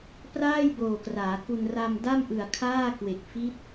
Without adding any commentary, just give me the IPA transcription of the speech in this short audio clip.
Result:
praː˥˩jboː˨˩kraː˩˦ku˧n ra˧mda˥˩m ʔɯ˨˩a̯kʰaː˥˩ kwe˨˩k̚fi˦˥t̚

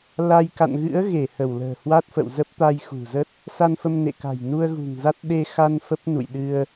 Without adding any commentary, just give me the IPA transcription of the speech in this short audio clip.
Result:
la˧j ka̰˧˨nɣɨ̰˧˥ə̯ ɣe˧˩hə˧˩w lə̤ː˨˩hwa˦˥t̚fə̰˧˨wzə˦˥p̚ t̪a˧jxṳ˨˩zə˦˥t̚ | sa˧nfə˧mnḛ˧˨ka̤˨˩j nu˧ə̯ɣṳ˨˩ŋza˦˥t̚ ɗe˧xa˧n fə˦˥p̚nṵ˧˨jɗɨ˧ə̯

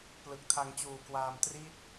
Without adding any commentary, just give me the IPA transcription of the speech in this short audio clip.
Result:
plɯ˨˩k̚tʰa˧ŋt͡ɕuː˨˩kwaː˧m tri˥˩t̚

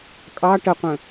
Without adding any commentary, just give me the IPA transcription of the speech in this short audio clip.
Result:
kʼɑ ʈəqʷə̃

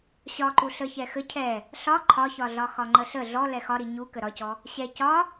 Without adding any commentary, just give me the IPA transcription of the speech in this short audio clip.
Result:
ɕɒǃu ɬə çɛxə cʰɛ | ɬɒ ǃʰɒçɒɮɒ xɒŋ͡ǃəɬə ɮɔ lɛxɒɾi ɲu kəɾɒcɔ | ɕɛ cɒ

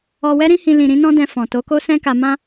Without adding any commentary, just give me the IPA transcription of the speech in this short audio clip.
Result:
ɔ˧wɛ˦ɾĩ˦hĩ˧ lĩ˨ ɾĩ˨˦nɔ̃˦dɛ̃˧ fɔ̃˨to˨˦ko˦ sɛ̃˦ka˧mã˦

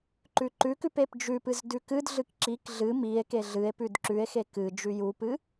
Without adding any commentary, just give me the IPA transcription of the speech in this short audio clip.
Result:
ǃʉǃʉkʉp epd͡ʒʉpɨz dʉkɨdɮɨk ǁik ɮɨ mie̯ keɮɨe̯pʉd ǁʉe̯xe kɨ d͡ʒʉjupɨ

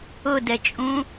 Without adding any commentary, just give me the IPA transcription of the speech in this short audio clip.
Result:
ʊdɛt͡ʃʼũ

